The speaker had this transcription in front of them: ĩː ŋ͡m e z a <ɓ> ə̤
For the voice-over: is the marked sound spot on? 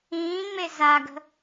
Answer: no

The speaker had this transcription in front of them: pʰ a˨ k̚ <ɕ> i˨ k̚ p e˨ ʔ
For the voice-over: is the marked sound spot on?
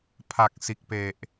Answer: no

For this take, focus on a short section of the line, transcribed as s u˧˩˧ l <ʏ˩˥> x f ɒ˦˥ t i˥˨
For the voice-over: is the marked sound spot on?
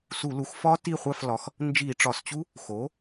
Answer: no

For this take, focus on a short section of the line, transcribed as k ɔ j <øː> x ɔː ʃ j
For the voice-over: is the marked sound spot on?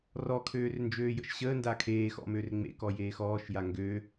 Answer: no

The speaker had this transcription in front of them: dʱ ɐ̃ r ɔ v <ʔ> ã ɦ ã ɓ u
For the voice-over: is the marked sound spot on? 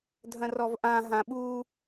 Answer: yes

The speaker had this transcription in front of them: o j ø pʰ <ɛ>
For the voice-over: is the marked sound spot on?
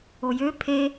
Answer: no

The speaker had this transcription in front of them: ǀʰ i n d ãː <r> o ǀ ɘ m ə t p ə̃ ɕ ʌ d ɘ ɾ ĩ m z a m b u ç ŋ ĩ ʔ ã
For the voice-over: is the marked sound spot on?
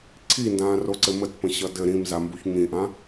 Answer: yes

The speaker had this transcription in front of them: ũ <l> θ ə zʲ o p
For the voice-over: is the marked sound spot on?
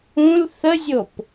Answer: yes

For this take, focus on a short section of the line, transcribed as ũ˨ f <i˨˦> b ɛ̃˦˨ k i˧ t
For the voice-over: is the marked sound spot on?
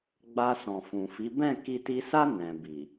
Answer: yes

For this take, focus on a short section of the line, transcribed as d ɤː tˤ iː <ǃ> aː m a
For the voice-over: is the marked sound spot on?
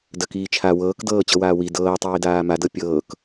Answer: no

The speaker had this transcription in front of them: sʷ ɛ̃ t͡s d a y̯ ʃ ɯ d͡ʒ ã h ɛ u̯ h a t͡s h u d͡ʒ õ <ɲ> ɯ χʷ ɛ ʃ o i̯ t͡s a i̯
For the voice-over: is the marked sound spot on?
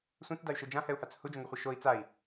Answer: no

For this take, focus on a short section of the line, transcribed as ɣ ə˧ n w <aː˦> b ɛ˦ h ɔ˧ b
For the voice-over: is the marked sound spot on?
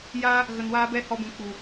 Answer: yes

